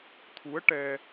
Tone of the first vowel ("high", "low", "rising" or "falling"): rising